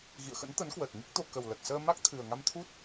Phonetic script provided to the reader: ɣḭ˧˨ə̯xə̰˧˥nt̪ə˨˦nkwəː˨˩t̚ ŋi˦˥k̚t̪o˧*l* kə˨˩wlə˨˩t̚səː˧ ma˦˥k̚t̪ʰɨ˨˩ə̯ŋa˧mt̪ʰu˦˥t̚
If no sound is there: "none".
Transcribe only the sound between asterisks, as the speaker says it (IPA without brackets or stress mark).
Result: none